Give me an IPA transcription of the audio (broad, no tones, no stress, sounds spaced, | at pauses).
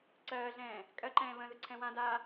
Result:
ǀ ɜː ɮ ɛ̃ː | kʼ ɜ ǃ ɛ̃ː β ə̃ ð ə ǀʰ ɛ̃ w ã d aː